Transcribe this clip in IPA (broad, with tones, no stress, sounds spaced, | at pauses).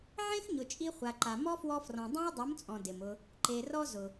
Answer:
ʕ ẽ˦ x ɲ ʊ˨ t͡ʃʼ i˧ χʷ a˨ ǃ a˨ m ɔ˦ f w ɔ˧ f r ɔ̃˨ dˤ ã˦ ɐ̯ dˤ u˨˦ m t͡sʼ ɔ̃˨ d ɪ˨ m ʊ˧ | ǃ e˨ r ɔ˦ z ʊ˨